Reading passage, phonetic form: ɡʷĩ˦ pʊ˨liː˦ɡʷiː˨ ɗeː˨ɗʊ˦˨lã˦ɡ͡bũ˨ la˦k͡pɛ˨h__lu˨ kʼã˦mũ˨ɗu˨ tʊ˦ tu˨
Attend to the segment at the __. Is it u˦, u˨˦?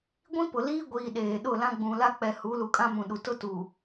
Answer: u˨˦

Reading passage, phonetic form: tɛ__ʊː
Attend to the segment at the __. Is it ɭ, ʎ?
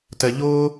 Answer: ʎ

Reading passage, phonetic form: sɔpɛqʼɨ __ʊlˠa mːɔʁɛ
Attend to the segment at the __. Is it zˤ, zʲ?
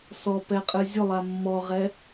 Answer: zʲ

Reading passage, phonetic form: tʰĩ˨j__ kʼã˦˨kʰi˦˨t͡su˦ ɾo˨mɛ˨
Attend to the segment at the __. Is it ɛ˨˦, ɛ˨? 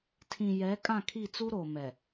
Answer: ɛ˨˦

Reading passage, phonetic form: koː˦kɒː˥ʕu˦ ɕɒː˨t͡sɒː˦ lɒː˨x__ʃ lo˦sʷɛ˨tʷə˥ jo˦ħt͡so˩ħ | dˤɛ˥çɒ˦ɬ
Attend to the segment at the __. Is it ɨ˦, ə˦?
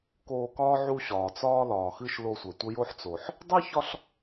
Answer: ɨ˦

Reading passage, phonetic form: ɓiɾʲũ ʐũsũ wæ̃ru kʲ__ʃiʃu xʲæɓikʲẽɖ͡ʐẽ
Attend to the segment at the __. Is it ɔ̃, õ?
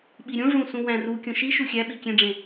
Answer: õ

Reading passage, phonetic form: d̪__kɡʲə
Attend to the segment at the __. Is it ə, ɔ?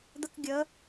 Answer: ə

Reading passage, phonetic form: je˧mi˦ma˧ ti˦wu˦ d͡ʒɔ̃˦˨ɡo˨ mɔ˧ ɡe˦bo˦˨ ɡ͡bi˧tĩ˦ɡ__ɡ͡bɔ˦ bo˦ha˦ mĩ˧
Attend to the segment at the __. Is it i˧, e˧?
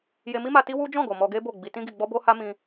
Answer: i˧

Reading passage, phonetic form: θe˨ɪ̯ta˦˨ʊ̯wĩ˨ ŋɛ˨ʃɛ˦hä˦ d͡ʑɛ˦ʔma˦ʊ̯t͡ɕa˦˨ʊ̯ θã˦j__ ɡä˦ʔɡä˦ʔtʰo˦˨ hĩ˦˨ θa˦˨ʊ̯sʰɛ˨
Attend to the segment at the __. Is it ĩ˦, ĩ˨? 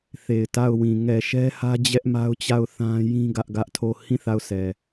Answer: ĩ˦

